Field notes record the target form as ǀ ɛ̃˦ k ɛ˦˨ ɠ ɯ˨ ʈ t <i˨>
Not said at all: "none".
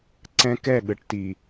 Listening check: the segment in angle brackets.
i˨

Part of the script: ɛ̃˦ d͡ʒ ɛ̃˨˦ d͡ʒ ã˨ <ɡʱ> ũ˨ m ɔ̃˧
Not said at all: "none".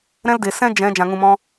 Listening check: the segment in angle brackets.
ŋ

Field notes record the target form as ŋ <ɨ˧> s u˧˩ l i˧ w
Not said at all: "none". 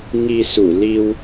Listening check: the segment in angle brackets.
i˧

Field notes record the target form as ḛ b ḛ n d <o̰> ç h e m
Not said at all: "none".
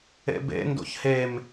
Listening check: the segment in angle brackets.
o̰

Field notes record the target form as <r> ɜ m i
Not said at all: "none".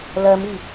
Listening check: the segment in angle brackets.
l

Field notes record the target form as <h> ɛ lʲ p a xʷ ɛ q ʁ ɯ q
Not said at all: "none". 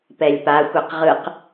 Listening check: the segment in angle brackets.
p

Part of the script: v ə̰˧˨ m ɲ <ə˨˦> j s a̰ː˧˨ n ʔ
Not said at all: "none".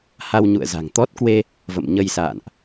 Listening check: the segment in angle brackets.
ə˧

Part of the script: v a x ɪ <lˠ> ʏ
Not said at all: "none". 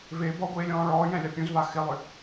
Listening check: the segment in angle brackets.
lˠ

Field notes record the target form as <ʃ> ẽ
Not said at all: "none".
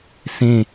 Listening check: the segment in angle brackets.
s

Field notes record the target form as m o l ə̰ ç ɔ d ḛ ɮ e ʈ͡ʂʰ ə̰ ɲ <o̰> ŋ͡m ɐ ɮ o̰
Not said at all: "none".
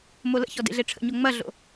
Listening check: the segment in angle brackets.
o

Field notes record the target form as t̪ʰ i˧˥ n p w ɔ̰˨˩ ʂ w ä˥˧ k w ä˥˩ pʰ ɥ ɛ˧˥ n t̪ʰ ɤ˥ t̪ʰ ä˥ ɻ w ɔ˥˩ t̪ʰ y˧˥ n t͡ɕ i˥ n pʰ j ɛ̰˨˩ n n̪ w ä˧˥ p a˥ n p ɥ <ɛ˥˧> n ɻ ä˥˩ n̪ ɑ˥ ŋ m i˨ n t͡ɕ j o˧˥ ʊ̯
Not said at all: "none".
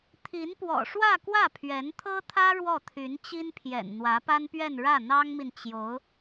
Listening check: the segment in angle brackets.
ɛ˥˧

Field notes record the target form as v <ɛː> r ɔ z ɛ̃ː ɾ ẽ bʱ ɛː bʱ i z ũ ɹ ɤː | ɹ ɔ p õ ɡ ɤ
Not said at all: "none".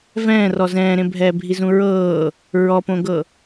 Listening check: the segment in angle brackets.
ɛ̃ː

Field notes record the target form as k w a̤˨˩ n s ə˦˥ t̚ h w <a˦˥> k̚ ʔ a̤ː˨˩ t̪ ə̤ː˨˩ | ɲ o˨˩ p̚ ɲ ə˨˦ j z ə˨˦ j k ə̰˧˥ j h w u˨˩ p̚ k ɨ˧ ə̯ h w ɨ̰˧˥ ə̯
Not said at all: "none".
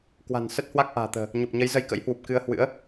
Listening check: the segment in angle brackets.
a˦˥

